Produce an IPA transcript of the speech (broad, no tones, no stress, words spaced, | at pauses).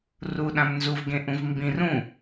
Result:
ruɗãm nzuvɡẽʔũv mbĩr ũ